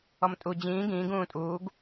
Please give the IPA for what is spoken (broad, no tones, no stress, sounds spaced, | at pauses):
ɔ m tʼ u d͡ʑ ĩː ɡ ĩː ɡ ũː tʼ uː ɡ